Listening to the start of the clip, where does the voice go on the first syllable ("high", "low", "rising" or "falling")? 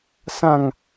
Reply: falling